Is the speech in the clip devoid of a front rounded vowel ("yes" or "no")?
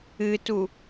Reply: yes